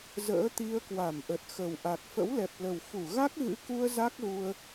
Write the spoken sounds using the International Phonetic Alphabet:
z ə̰ː˧˥ t̪ i˧ ə̯ k w a˧˩ m ʔ ə˨˩ t̚ x ə˨˩ w ʔ a˨˩ k̚ f ə̰˧˥ w l ɛ˨˩ p̚ l ə˨˩ w f u˧˩ ɣ a˦˥ k̚ ɣ ɨ̰˧˥ k u˧ ə̯ z a˦˥ k̚ ɣ u˧ ə̯

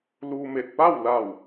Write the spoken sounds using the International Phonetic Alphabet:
l u˧ m e˧˩ t̚ p a˥˨ w l a˧˩ w

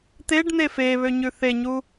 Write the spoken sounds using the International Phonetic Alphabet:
t̪ e ɖ n̪ e f e β ø ɲ ʉ θ e ɲ u

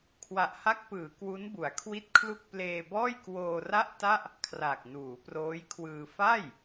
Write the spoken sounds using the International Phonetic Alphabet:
kʰ w a˨˩ ʔ h a˦˥ k̚ p ɯː˩˦ k w u˦˥ n b u˩˦ a̯ kʰ w i˥˩ t̚ kʰ l u˥˩ k̚ p l eː˧ b ɔː˥˩ j k w oː˧ r a˥˩ ʔ t a˥˩ ʔ | kʰ r a˨˩ k̚ n uː˩˦ p r oː˦˥ j kʰ w ɯː˧ f a˥˩ j

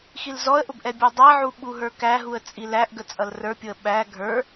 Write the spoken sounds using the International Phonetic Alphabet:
x i l z ɔ ə̯ ʔ ʊ b ʔ ɛ bʲ ɔ dˤ æ ʕ u ɓ u ɦ ə˞ k æ ɦ u ə̯ t͡sʼ i l æ ʔ ɡ ə t͡sʼ ʌ l r ə˞ pʲ ʊ ə̯ ɓ æ ɡʱ ə˞

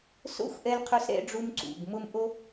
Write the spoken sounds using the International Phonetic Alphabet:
s o̰˥ xʷ ʔ ɛ˥ l qʰ o˥ s ɾ ɛ̰˥ ɖ͡ʐ u˥ m ǀ ṵ˩˧˩ ɡ m ʊ˥ m ʔ o˥

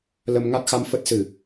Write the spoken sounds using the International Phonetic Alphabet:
l ə˧ m ŋ a˦˥ t̚ x a˧ m f ə˦˥ t̚ s ɨ˧˩˨

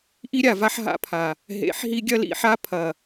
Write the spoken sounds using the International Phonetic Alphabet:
ʔ i˦ ɾʲ a˨ v a˦ ħ ɦ a̰˦ pʰ a˨ | ɦ ḛ˨˦ ħ ɦ i˦ ɡʲ ɐ˦ l ḭ˨˦ ħ a˦ pʰ ɐ˨

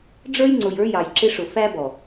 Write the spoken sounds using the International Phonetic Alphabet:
ɖ͡ʐ ə˞˦ j ŋ͡ǀ ʊ˨ j ə˞˦ j ɑ˨ j ǁ ɪ˦ ʂ ʊ˨ f æ˦ b ɔ˨

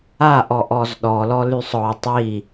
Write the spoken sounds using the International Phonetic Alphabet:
a ʔ ɔ ʔ ɔ z ɗ ɔ l ɔ l y sˤ ɔ tˤ i

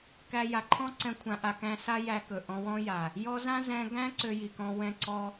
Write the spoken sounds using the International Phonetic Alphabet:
k æ˧ j a˨ ǃʰ ɔ̃˦ ǀ ɛ̃˧ kʷʰ ã˧ ʔ a˧ k æ̃˧ s a˦ j æ˧ k ɵ˨ ʔ ɔ̃˧ w ɔ̃˦ j a˨ | j ɔ˦ z ã˦ z ɛ̃˧ ɡ æ̃˦ ǀ ø˧ j i˨ k ɔ̃˧ w ɛ̃˧ ǀ ɔ˧

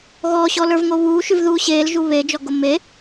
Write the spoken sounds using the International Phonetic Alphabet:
ɣ ɔː ɕ ɔ l ə˞ v ŋ o β uː ʃ ʉ v ð uː ɕ eː l ʒ u β e d͡ʒ ɔ ɡ o m e

